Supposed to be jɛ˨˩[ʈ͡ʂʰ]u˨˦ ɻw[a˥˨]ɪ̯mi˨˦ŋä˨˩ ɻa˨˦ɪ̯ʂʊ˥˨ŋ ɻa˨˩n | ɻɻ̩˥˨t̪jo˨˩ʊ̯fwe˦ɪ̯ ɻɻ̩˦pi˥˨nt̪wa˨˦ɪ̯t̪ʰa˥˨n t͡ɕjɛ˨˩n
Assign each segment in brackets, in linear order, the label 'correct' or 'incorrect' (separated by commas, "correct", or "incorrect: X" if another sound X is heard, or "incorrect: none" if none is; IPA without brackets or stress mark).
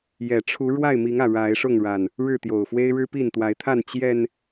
correct, correct